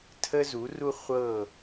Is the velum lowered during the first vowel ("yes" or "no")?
no